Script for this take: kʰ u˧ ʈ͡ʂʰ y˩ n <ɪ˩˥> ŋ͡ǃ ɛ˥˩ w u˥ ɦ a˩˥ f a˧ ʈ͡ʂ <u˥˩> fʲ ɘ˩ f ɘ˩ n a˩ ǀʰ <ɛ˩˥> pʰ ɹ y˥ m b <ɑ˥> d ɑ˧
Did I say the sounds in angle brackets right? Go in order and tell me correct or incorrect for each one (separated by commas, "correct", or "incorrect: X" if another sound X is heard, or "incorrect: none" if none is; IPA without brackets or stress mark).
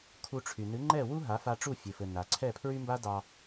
incorrect: ɨ˩˥, correct, incorrect: ɛ˥˩, incorrect: a˥